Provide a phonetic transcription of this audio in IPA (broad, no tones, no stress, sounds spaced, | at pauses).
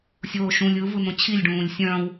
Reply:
sʲ oː ʃ ũ lʲ ɯ v ɯ n̪ õ t͡ɕʰ i lʲ ɖ ũː lʲ sʲ œ̃ w